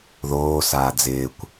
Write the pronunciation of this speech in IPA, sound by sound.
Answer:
ð oː s aː d͡z ɪː kʷ

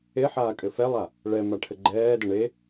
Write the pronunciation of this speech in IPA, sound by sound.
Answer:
e ħ aː kʼ ɘ f ɛ lˠ a | ɭ ɛ m a ʈʰ ɘ ɡ͡ǃ ɛː d ə ɳ e

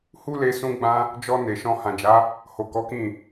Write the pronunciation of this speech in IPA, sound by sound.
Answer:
h u˦ l e˧ s ũ˦ ɡ͡b ã˦ | d͡ʒ ɔ˧ n e˨ ʃ ɔ̃˧ h ã˨ d͡ʒ a˨˦ | h o˨ k ɔ˨˦ k ĩ˦˨

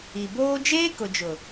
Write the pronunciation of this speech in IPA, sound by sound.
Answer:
i˨ b oː˦ d͡ʒ eː˦ k ʊ˨ d͡ʒ ʊ˨

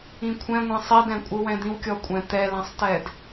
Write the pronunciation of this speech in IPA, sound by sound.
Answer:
ĩ kʷʰ ɛ̃ ŋʷ ɛ̃ sˤ i d ɛ̃ kʷʼ ɯ w ɛ̃ d̪ ĩ w kʲ ɔ kʷʼ ɛ̃ t̪ ɛ l ɛ̃ sˤ t ɛ d

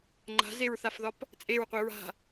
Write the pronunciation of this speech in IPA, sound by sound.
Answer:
ŋ͡ǃ a̤ z e ɹ θ a f ð ɒ p | t͡sʼ e ɹ qʷ i ɹ a̤

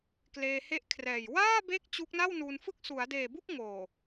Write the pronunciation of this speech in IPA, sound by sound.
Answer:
k l eː˧ h e˦˥ ʔ kʰ r ɛː˨˩ j w aː˥˩ b e˦˥ k̚ t͡ɕ u˦˥ k̚ n a˥˩ w n uː˧ n f ɯ˥˩ k̚ s u˩˦ a̯ d eː˨˩ b u˥˩ k̚ ŋ oː˨˩

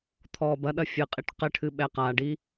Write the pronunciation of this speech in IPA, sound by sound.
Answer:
t̪ʰ ɔː b ɐ ɗ ɐ fʲ ɨ qʼ i ʈ q ɘ ʈʰ ɨ ɓ ɛ q a ɖ i

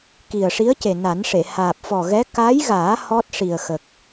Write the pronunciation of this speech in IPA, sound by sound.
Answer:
k i˨˩ ə̯ ʂ i˧˥ ə̯ c e˨˩ n a˨˩˦ n ʂ e˨˩˨ h aː˨˩ p̚ f ɔ˨˩ ɣ ɛ˧˥ k a˧˥ j ɣ aː˨˩˦ h ɔ˦˥ t̚ ʂ i˨˩ ə̯ x ə˨˩ k̚

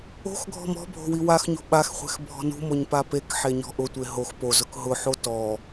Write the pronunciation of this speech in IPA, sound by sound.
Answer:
o̤ x ɡʱ ɔ̤ m ɔ̤ bʱ o̤ w i w a x ɲ o̤ ɓ a x χʷ ɛ̤ x bʱ ɔ̤ n ṳ m o ɲ p a p e k ħ e ɲ ɔ̤ ʔ ʊ tʷ e ɦ o x p o z ʊ k ɦ ʊ ħ o t ɔ

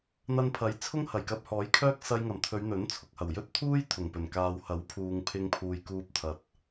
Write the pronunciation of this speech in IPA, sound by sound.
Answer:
n̪ ɐ˧ n pʰ ɐ˨˥ j t͡sʰ ʊ˥ ŋ h ɐ˨˩ j k ɐ˧ p̚ h ɔː˨˥ j kʰ œː˥ k̚ s ɐ˧ j ŋ ɐ˨˩ m t̪ʰ ɵ˨˧ ɥ n̪ ɵ˨˥ n t͡sʰ ʊ˨ k̚ h ɐ˨˩ w j ɵ˥ t̚ t̪ʰ uː˥ j t̪ʰ ʊ˨˩ ŋ p ɵ˨˩ n k aː˨ w h ɐ˨˥ w pʰ uː˨ ŋ pʰ ɪ˧ ŋ pʰ uː˨ j k uː˧ p̚ t̪ʰ ɐ˨ t̚

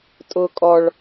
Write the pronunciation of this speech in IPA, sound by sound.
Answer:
tʼ ʊ kʼ ɔ ɭ

